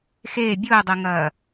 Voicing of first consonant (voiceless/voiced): voiceless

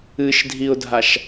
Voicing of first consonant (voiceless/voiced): voiceless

